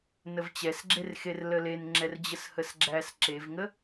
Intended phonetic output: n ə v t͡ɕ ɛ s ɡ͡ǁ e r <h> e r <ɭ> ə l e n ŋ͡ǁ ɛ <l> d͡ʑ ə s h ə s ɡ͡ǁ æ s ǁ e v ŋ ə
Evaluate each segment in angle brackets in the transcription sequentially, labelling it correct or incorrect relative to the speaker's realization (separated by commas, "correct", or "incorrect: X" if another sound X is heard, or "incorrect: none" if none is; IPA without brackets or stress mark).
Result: incorrect: x, incorrect: l, incorrect: r